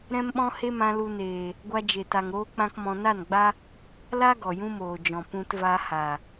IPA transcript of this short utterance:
ɾɛ̃˦mɓɔ̃˦ he˦mã˧ lu˧neː˨ | ɡʷa˧d͡ʒe˨ta˨ŋ ɾoː˦k͡pã˦kmɔ̃˧ na˦˨nɡ͡ba˦ | la˦ ɡɔ˨jũ˦moː˨d͡ʒɔ̃˨ pũ˧tva˧ha˨

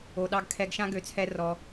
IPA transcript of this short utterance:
o˨ɗɑ˧ɡ kʰɛ˧ɡʃã˦ ɡø˨˦t͡sʰɛ˧ rɔ˧

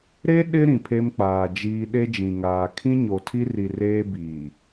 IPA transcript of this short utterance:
ɾe˦ ɗɪ˦ ɾĩ˨pʰe˦mk͡paː˨d͡ʒiː˦ ɗe˦d͡ʒĩ˨ŋaː˨ kʰĩ˦ɲo˨tʰi˦ri˨ reː˦biː˨

